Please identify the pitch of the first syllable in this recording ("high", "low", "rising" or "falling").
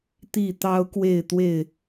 falling